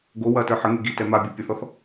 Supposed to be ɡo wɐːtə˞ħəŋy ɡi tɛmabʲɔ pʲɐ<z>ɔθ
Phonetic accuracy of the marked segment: incorrect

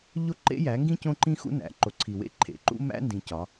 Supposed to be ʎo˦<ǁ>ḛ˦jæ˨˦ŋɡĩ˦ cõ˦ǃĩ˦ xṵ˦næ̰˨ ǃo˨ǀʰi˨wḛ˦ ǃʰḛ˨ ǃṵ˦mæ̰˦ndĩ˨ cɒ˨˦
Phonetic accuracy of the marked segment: incorrect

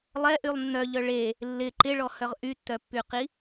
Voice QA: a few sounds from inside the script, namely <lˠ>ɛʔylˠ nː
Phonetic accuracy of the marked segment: correct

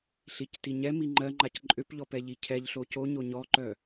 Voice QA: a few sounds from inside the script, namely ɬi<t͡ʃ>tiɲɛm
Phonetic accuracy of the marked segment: incorrect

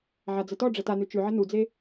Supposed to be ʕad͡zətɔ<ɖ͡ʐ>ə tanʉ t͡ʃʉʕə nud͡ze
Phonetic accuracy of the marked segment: correct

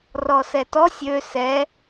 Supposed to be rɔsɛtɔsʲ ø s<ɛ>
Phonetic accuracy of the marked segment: correct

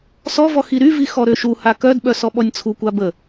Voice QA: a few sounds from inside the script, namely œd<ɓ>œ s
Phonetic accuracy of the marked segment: correct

